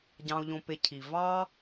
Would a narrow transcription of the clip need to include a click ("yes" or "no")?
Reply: no